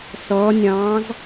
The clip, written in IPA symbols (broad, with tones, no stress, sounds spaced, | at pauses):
s ʌː˧˥ nʲ ɑ̃ː˧˥ z